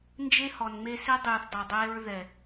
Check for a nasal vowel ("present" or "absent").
absent